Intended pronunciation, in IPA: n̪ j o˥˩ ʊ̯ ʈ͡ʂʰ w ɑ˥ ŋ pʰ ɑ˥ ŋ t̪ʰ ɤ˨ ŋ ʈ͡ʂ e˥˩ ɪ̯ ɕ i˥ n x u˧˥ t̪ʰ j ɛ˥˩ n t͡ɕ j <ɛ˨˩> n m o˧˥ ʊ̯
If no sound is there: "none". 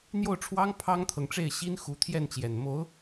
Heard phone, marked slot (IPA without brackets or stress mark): ɛ˨˩